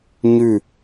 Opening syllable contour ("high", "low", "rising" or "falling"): falling